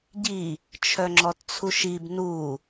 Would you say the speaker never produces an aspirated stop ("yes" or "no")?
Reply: no